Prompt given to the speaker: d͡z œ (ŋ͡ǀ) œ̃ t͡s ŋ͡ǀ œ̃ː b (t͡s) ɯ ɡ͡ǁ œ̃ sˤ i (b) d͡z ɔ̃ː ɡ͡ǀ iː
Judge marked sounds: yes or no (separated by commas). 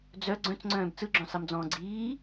no, yes, no